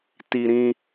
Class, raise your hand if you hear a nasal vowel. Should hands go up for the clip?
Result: yes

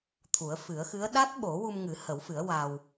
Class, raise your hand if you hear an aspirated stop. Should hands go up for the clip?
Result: yes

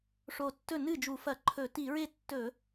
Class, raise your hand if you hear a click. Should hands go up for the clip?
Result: yes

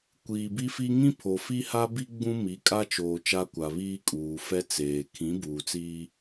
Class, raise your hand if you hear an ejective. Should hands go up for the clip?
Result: yes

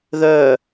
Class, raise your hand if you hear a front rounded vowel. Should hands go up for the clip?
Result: yes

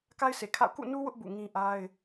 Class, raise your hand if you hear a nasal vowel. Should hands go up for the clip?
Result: yes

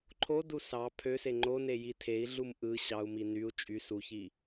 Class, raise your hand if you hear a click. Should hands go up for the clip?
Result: yes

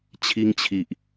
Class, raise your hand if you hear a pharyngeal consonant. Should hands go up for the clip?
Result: no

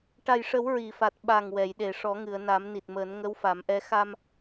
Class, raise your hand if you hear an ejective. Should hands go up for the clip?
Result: no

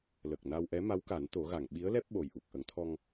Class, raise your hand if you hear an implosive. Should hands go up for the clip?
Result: yes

